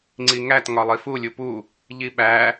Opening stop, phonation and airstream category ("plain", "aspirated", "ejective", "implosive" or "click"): click